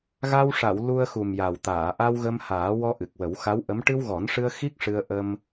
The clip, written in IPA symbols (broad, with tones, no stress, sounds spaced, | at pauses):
ɣ a˧ w ʂ a˨˩˨ w l u˧ ə̯ x u˨˩ m j a˨˩ w t̪ aː˨˩˨ ʔ a˧ w ɣ ə˧ m h aː˨˩˦ w ɔ˧ ʔ ɨ˨˩ k̚ w ə˨˩˦ w x a˧˥ w ʔ ə˧˥ m ʈ ɨ˧ w ɣ ɔ˨˩˦ n ʂ ɨ˧ ə̯ x i˦˥ k̚ ʂ ɨ˧ ə̯ ʔ ə˧ m